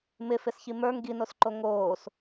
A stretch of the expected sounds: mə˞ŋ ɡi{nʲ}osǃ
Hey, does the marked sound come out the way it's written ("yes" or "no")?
no